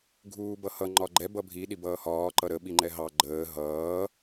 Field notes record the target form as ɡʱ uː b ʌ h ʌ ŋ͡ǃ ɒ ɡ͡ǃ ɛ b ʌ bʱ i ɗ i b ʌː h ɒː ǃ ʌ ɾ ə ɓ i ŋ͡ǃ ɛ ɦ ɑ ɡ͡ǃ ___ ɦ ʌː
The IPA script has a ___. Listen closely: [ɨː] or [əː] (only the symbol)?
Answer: əː